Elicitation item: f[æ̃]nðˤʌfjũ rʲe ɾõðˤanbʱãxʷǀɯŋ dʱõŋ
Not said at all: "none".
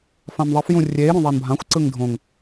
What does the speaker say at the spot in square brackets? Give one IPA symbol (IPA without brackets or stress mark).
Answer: ã